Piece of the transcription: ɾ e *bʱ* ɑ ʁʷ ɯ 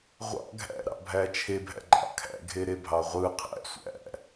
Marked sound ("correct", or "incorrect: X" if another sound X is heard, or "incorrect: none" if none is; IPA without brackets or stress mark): correct